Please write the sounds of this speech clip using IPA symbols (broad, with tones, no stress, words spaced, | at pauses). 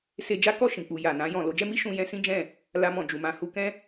se˧d͡ʒa˦kɔ˦˨ʃĩ˨ k͡pu˨ ja˨nã˧ jɔ̃˨ lo˨˦d͡ʒɛ˦mi˦ ʃũ˧ jɛ̃˦sĩ˦d͡ʒɛ̃˦˨ | la˧mɔ̃˨d͡ʒu˨mã˧ hu˧kɛ̃˦